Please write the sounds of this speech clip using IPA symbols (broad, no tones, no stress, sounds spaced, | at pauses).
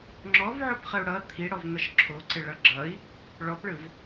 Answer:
ŋ͡ǁ ɔ v ʕ o p χ ə u̯ ɽ ʌ t̪ʰ i ɽ ɔ v n̪ ʌ ʃ ǁʰ o ǀ ɪ ɭ ʌ ɡ͡ǁ ʌ i̯ | ɭ ɔ p ɭ ɯ v